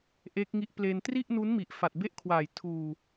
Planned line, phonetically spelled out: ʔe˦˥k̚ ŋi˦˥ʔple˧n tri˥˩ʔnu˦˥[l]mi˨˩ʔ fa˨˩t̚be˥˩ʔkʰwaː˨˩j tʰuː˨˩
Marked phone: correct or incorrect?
incorrect